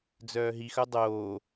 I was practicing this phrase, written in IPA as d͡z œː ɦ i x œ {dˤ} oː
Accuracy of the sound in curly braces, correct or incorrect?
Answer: correct